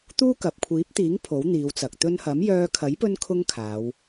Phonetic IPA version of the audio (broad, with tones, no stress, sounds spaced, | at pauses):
t̪ uː˥ k ɐ˨ p̚ kʷʰ iː˨˥ p̚ t̪ iː˨˥ ŋ pʰ o˨˥ w n̪ iː˨˧ w t͡s ɐ˨ k̚ t̪ ɵ˧ n h ɐ˨˥ m j œː˧ kʰ ɐ˨˥ j p ɵ˥ n kʰ ʊ˥ ŋ kʰ aː˨˧ w